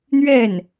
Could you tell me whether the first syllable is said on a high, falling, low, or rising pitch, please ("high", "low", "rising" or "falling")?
falling